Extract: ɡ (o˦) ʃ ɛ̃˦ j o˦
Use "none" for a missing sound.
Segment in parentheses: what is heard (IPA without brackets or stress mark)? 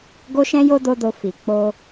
o˦